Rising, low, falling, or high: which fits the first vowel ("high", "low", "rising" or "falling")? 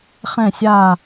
falling